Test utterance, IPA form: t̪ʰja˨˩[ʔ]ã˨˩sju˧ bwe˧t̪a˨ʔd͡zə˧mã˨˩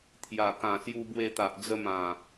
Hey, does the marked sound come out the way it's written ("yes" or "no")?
no